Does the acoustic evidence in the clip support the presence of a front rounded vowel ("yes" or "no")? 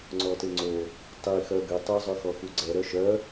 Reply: yes